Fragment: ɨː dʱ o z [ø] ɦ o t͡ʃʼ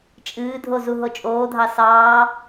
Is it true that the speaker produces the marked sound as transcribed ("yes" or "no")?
no